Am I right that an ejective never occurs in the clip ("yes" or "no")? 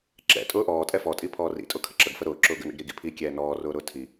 no